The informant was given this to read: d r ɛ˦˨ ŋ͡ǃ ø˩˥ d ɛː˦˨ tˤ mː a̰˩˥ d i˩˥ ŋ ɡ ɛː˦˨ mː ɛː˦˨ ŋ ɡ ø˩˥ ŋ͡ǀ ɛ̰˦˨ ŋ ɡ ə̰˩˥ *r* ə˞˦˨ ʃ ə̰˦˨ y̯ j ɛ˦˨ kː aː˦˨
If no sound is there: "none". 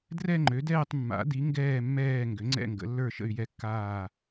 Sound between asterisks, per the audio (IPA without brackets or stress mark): lː